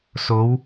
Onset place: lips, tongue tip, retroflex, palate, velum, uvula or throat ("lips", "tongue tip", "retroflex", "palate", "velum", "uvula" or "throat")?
tongue tip